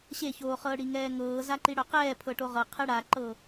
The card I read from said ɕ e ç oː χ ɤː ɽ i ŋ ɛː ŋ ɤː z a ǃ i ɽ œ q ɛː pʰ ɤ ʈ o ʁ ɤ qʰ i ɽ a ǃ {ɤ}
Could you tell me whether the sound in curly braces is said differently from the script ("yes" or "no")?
yes